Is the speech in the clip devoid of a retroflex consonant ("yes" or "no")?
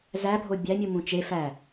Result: yes